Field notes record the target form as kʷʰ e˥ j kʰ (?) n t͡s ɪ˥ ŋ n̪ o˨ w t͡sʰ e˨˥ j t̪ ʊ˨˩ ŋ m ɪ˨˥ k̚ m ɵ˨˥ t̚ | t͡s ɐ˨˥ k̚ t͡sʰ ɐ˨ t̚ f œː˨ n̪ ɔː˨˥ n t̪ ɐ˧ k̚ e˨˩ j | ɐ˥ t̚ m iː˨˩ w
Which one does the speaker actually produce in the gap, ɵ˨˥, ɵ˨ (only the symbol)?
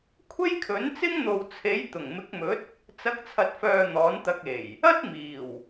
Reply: ɵ˨˥